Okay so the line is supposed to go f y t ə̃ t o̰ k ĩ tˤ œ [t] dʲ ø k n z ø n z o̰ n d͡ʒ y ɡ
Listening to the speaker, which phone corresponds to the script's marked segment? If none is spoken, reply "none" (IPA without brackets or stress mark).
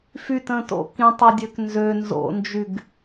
none